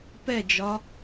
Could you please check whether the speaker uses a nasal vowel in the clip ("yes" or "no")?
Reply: no